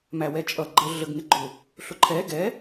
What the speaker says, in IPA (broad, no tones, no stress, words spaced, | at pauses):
mæwɛt͡ʃʼʌ ɡ͡ǃə ɮəɡŋɪɡ͡ǃʊ | ɬʊǃʰɛ ɡɛ